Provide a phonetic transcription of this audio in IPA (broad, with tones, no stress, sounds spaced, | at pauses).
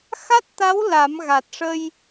x a˦˥ t̚ t̪ a˧˥ w l a˨˩˦ m ɣ a˨˩ t̚ ʂ ə˧ j